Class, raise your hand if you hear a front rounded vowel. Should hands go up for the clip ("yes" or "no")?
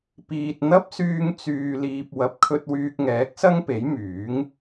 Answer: yes